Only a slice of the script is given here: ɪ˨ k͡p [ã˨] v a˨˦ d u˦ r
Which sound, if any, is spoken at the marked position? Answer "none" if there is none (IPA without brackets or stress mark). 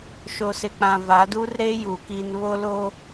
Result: ã˨